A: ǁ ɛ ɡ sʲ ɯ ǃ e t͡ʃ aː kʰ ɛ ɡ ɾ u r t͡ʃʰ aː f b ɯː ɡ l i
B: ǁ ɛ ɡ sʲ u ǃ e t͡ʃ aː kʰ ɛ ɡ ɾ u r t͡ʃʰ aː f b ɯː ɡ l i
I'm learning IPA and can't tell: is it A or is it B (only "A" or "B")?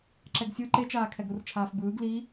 A